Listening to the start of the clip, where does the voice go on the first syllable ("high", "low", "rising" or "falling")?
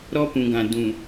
high